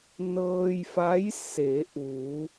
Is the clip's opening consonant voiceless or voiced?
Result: voiced